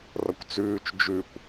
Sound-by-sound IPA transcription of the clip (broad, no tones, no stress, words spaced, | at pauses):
rʌkʷt͡sʉːt͡ʃ d͡ʒʉkʷ